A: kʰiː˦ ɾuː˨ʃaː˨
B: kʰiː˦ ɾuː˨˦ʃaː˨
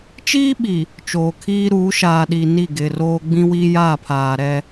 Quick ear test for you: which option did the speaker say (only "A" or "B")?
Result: B